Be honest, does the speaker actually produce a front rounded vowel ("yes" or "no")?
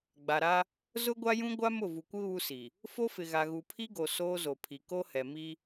no